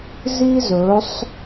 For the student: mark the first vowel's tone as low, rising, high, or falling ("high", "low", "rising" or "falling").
high